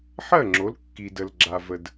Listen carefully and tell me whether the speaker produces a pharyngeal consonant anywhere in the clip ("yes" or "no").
yes